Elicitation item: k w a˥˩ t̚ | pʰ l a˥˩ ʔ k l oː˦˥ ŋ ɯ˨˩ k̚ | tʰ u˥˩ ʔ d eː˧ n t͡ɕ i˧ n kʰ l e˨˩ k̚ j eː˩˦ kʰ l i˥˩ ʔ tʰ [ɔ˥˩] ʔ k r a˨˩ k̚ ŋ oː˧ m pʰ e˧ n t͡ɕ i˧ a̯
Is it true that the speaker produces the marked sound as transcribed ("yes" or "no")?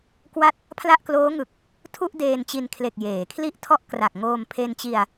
yes